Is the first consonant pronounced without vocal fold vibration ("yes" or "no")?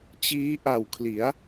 yes